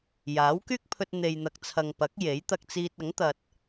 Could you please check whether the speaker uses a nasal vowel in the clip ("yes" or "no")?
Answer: no